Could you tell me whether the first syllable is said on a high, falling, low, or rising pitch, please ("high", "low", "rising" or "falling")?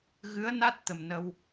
rising